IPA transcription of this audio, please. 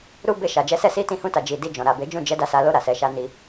ɾ u˦ b e˧ ʃ a˨ d͡ʒ ɛ˨˦ s ɛ˧ s i˦ t ĩ˦˨ h ũ˧ t a˨ d͡ʒ i˨ d i˧ d͡ʒ ɔ̃˨ ɾ a˨ b e˨˦ d͡ʒ ũ˦˨ d͡ʒ ɛ˨˦ d a˦˨ s a˨˦ l o˧ ɾ a˨ s ɛ˨ ʃ a˧ n i˧

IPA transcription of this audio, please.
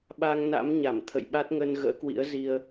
ɓ a˧ ŋ n a̰˧˥ m ɲ a˧˩ m t̪ʰ ə̰˧˨ j ɓ a˦˥ t̚ ŋ ə˧ n ɣ ə̰ː˧˥ k w ḭ˧˥ ə̯ z i˧ ə̯

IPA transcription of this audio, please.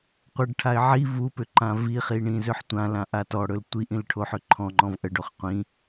qʷ ə ɖ ʈʰ a ɪ̯ ʕ i v u p ʏ ǃ ã v i χ i ɳ ĩ z ʏ ħ tʷ ã l ã ʔ a t ɔ ɽ ɵ l tʷ i ʔ ĩ l ʈʰ o ħ ʏ ǃʰ ɔ̃ ŋ͡ǃ ɔ̃ v ʔ ə ɖ o χ qʷ ĩ

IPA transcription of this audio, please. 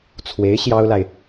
t͡sʰ w e˧˥ ɪ̯ ɕ j ɑ˥ ʊ̯ l a˨ ɪ̯

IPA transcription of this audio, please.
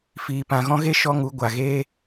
f iː˨ p ã˨ ɣ ɔ̃˦ ɣ e˦ ʃ ɔ˦ ŋ u˨˦ ɡʷ a˨ ɣ eː˦

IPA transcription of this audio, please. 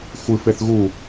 xʷ ɨ f e θ ɣ u

